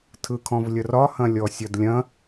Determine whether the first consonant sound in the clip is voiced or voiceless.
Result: voiceless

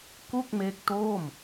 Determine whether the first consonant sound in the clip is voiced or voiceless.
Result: voiceless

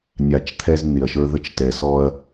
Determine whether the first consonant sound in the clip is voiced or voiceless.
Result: voiced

